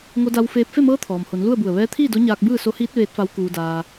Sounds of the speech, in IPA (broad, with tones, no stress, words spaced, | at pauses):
ŋo˧da˧wfeː˧p̚ fe˥˨mɤː˧˥ t̪ʰɔː˩mho˩˧n lu˥˨ə̯bu˧˩ə̯ ʋɛː˧˥t̪ʰiː˥˨do˧˥ɲaː˧k̚ bɯː˥˨so˧˥hiː˧˥t̚ ʋeː˧˥t̚fa˧˥w kuː˧daː˧